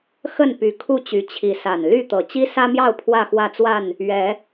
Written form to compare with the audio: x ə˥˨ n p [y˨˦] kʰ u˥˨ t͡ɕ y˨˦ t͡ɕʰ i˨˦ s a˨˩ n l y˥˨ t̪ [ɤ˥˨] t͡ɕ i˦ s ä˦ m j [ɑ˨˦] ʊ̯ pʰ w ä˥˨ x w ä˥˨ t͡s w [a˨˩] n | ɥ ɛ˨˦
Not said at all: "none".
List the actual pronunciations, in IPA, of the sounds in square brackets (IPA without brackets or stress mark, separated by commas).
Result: y˨˦, ɤ˨˩, ɑ˥˨, a˥˨